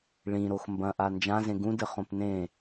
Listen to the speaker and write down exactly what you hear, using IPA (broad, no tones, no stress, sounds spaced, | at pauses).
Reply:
ɭ ĩ ɾ o x m b ɐ̃ ʔ a n d͡ʒ ã z ẽ ɡ ũ d ɘ χ õ p n ẽ